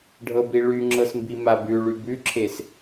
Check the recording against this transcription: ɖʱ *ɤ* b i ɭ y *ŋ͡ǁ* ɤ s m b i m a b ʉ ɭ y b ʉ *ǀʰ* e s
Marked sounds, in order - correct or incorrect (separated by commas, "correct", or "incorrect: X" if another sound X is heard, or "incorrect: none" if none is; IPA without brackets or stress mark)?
correct, correct, incorrect: ǁʰ